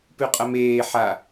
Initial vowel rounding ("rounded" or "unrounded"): rounded